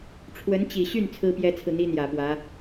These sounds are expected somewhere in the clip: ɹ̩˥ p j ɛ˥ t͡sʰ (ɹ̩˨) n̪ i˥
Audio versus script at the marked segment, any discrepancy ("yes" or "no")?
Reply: no